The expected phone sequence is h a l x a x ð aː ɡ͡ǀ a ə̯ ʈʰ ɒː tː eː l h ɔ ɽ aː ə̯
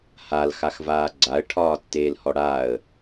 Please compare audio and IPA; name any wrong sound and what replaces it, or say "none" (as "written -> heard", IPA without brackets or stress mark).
ð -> v